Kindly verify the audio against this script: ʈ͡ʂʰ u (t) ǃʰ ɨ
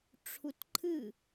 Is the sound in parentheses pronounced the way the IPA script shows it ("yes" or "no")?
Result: yes